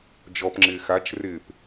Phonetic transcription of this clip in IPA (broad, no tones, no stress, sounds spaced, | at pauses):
d͡ʒ ɔ p ŋ͡ǁ ɪː x a t͡ʃ r ɪː p